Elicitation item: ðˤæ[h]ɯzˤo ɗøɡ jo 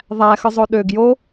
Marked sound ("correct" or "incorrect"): incorrect